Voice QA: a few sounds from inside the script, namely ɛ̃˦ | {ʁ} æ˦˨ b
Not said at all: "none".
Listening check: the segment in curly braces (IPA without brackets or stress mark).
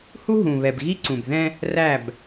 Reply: r